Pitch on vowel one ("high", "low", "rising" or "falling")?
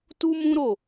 high